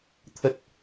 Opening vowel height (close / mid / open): mid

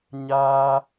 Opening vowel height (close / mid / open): open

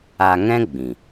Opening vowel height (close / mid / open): open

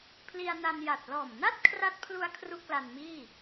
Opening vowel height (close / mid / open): close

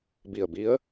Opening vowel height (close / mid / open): close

